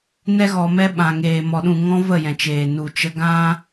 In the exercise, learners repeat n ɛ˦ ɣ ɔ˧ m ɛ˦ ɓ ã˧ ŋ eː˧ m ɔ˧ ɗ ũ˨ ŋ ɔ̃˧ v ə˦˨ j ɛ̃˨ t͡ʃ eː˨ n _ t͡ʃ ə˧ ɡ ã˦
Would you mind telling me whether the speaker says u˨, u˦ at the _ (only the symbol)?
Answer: u˨